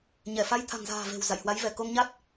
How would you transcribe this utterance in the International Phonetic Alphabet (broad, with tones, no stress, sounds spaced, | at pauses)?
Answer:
ɲ ɛ˧˩ f a˧ j t̪ʰ a̤˨˩ ŋ z a̤ː˨˩ v e̤˨˩ w z a̰˧˨ j h w a˨˦ j v ɛ˧˩ k o˧ ŋ ɲ a˦˥ t̚